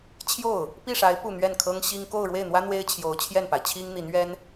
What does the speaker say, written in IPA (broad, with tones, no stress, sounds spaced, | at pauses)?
t͡ɕʰ j o˥˩ ʊ̯ | p i˥˩ ʂ a˧˥ ɪ̯ p u˥˧ n̪ ɥ ɛ˥˩ n kʰ ɤ˥ ŋ ɕ i˥ ŋ k o˥˧ ʊ̯ ɻ w e˥˩ ɪ̯ n̪ w ä˥ n̪ w e˥ ɪ̯ t͡ɕʰ j o˧˥ ʊ̯ t͡ɕʰ j ɛ˥˩ n p a˩ ɪ̯ t͡ɕʰ i˥ ŋ n̪ i˧˥ n ɥ ɛ˥ n